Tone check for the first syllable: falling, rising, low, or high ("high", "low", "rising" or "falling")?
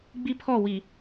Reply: high